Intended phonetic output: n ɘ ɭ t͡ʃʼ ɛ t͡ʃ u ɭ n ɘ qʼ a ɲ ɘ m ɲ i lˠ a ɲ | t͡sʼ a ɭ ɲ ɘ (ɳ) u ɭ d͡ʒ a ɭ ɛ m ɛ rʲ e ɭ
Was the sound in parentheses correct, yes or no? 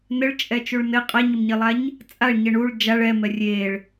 yes